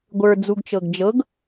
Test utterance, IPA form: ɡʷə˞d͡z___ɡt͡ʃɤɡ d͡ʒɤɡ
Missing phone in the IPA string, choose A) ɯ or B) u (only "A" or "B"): B